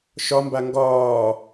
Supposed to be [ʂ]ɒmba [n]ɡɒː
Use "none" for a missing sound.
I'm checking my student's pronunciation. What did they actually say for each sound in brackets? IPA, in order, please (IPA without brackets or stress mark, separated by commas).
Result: ʃ, ŋ